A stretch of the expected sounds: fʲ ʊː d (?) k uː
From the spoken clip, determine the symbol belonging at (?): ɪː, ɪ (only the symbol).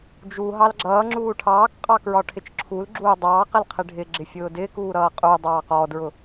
ɪː